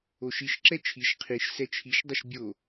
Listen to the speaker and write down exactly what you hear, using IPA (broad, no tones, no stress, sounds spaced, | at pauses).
o ʃ i ʃ ǁ ɛ t͡ʃʰ i ʃ qʰ i ʃ s ɛ t͡ʃʰ i ʃ dˤ ʊ ʃ bʲ o